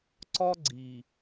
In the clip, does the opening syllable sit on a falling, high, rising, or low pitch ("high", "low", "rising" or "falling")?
high